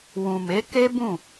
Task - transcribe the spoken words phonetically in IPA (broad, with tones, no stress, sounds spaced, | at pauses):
w ũ˨ m e˨˦ k e˦ b ũ˦˨